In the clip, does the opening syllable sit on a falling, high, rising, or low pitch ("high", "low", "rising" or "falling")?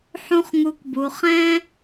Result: high